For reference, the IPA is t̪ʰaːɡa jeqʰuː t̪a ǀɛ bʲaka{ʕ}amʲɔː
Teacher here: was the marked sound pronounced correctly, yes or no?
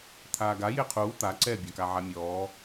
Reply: yes